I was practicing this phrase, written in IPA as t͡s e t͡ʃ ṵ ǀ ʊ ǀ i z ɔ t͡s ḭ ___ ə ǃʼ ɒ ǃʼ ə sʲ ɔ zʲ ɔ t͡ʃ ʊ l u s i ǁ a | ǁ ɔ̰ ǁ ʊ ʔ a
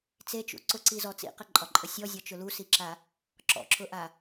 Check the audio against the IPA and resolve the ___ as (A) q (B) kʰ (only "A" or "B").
A